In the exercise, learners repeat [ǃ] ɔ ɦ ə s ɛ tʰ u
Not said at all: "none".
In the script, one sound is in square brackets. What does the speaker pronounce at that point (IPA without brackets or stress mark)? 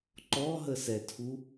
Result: ǃ